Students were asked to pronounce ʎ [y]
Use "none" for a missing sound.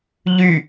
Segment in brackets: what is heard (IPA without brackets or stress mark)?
y